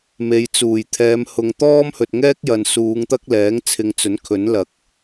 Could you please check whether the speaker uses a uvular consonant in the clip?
no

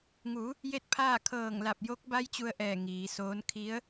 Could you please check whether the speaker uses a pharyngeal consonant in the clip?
no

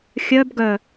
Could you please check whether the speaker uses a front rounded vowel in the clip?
yes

